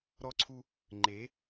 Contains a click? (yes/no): yes